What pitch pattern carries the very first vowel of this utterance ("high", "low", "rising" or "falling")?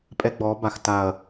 high